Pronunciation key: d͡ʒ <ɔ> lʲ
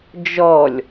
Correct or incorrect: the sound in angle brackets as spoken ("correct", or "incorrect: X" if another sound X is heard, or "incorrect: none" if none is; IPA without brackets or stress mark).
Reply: correct